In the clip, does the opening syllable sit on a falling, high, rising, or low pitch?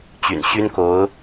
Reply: low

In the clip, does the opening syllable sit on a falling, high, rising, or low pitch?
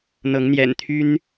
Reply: rising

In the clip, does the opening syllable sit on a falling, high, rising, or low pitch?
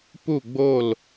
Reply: falling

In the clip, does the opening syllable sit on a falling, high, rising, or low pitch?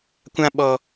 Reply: high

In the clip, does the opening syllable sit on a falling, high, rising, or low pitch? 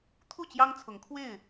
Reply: falling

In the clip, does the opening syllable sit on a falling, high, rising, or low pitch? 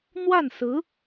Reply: falling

